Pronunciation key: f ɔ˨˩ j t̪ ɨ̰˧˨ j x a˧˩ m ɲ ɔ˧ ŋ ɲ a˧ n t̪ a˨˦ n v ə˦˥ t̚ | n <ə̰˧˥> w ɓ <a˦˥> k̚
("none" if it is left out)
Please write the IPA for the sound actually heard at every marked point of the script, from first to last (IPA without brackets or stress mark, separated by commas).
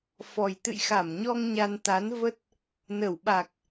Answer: ə˧˩, a˨˩